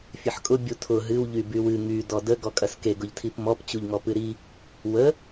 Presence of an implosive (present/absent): absent